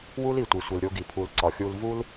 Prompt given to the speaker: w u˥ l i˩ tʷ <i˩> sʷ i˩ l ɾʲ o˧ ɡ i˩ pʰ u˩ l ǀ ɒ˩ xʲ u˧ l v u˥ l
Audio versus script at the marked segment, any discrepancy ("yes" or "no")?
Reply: no